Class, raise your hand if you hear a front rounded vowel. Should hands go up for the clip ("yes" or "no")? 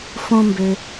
yes